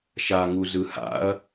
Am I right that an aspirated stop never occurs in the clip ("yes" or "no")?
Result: yes